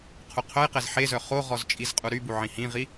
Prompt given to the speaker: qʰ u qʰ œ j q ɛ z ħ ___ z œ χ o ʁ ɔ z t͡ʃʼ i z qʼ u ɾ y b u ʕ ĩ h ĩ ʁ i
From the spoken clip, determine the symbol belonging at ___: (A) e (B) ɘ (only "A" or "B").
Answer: A